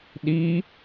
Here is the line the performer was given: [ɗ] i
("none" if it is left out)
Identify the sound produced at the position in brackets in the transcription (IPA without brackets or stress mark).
ɗ